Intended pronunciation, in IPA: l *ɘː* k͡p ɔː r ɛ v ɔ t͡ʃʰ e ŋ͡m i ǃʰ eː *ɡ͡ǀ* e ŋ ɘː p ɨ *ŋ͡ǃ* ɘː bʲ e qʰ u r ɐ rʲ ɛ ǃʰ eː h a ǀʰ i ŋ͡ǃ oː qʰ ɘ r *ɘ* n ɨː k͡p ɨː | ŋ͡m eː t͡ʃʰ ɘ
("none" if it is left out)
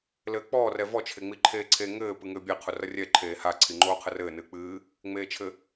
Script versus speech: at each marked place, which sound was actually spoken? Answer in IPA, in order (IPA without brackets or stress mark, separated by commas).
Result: ɘː, ǀʰ, ŋ, ɘː